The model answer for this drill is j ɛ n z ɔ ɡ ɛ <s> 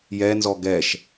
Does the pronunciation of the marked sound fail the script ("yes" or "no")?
yes